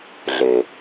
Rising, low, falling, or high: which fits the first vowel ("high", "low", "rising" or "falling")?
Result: low